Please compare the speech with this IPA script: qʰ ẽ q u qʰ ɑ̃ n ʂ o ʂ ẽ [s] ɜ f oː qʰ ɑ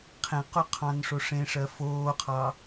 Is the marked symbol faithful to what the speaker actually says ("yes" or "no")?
no